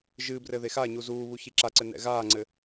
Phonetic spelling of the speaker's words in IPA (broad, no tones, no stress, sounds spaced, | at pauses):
ʒ ɨː b r ɘ ð e x a ɲ u z uː β u ç i ǁ a ǀ ɘ n ɛ̰ ɣ aː ŋ͡ǀ ɘ